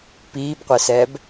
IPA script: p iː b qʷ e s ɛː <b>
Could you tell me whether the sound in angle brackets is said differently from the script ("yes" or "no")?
no